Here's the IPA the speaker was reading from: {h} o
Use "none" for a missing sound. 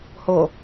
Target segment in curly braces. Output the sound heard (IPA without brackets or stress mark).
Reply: h